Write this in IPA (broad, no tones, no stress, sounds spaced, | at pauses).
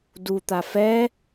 d u t̪ a f ɛ